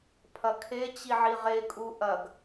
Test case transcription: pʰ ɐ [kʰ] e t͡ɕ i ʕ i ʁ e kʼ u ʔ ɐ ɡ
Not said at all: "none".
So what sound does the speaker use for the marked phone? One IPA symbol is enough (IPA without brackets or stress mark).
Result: kʰ